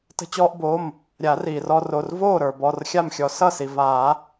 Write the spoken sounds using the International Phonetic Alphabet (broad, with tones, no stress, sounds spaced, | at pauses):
t ə̤˧ t͡ɕ ɔː˧ ʔ b oː˩˧˩ m | ɾʲ a˨˩˦ r iː˩ r ɔ˧ r o˩˧˩ r v oː˥˩ ɾ ə˞˩ b ɔ˩˧˩ r xʲ a˥˩ m xʲ ɔ˨˩˦ s ʌ˥˩ s i˩ v aː˨˩˦